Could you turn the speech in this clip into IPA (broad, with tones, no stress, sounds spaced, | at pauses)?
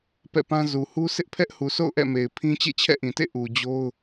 p ɛ̰˦˨ p ã˦ z u˨ h u˦ sʰ ɪ˦ ʔ pʰ ɛ˦ ʔ h u˨ sʰ o̰˦˨ ʊ̯ ʔ ɛ̰˦˨ m e˨ ɪ̯ pʰ ĩ˦ t͡ɕ ḛ˦˨ t͡ɕʰ ɛ̰˦˨ ʔ ĩ˨ t ḛ˦˨ ʔ u˨ d͡ʑ o˦ ʊ̯